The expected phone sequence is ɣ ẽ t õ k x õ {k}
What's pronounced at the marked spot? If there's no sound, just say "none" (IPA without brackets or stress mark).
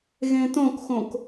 k